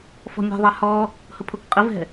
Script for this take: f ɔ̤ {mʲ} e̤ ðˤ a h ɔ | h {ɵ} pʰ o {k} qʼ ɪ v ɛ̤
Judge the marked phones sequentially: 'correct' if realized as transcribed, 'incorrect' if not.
correct, incorrect: ʊ, correct

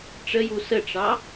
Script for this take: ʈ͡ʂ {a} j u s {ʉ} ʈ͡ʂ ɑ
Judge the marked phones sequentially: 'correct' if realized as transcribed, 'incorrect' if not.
incorrect: ə, incorrect: ə

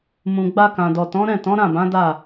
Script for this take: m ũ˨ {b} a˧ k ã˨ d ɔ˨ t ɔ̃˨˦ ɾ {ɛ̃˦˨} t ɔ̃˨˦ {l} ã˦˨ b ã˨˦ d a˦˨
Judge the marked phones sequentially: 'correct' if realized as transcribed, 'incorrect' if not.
incorrect: ɡ͡b, correct, incorrect: ɾ

